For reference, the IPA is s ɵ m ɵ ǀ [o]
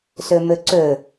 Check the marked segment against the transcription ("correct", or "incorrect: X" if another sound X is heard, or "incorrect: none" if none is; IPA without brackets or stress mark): incorrect: ɵ